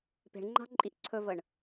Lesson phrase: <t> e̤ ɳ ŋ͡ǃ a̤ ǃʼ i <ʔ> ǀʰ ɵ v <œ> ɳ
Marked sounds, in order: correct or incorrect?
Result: incorrect: p, correct, incorrect: ə

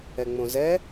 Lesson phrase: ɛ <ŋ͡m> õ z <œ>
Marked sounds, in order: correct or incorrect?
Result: correct, incorrect: ɛ

